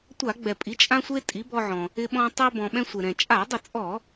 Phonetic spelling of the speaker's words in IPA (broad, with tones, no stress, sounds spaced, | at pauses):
tʷ a˧˩˧ ɡ͡b ɛ˩ pʼ i˩˥ t͡ʃʼ ã˧ sʷ e˧ tʼ i˩˥ b ɔ˧ ʕ ɔ̃˩ | ɪ˧ ɓ ɔ̃˧ tˤ e˧ b ɔ̃˩ ɓ ɛ̃˧ sʷ e˩ ɾ ɛ̃˩ t͡ʃʼ a˧˩˧ dˤ ɪ˧˩˧ t͡sʼ ɔ˧˩˧